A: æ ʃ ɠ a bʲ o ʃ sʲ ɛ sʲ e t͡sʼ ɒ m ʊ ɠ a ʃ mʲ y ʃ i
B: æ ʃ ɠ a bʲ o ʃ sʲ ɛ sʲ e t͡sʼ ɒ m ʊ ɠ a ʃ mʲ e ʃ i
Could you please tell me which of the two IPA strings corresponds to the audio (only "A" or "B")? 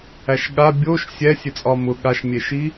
B